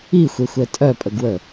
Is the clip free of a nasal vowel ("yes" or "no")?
yes